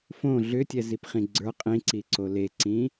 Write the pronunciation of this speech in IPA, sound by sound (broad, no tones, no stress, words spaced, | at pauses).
fõ ɮʏtʲɛzipχĩ ɡ͡ǀə˞ qʼĩǀiǀo leǀĩ